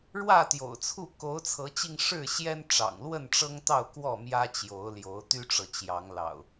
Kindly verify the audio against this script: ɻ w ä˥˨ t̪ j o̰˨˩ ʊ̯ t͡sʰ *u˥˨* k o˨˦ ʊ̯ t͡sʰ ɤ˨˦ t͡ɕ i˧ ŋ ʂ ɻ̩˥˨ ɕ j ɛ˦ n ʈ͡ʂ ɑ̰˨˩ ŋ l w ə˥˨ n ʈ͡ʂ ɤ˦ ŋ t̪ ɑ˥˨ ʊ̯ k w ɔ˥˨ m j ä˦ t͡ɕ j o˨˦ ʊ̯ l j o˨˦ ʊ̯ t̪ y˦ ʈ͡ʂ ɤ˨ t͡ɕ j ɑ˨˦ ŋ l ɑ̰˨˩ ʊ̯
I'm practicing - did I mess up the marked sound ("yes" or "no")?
no